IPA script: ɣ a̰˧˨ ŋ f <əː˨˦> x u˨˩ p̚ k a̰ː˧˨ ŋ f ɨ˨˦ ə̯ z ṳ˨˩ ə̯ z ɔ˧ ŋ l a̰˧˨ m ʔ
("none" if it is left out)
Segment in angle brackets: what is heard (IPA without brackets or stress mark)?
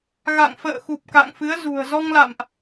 ə̰ː˧˨